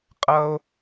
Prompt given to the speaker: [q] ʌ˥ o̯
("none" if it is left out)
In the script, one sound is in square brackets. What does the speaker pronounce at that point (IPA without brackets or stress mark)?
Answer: qʼ